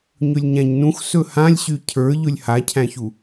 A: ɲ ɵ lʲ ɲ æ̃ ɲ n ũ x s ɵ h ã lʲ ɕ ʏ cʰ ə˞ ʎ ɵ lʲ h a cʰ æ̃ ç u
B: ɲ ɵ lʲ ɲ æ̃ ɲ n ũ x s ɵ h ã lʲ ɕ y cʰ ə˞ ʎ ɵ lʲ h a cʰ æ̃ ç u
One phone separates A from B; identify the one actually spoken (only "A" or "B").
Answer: B